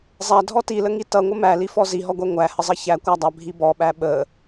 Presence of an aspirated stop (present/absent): absent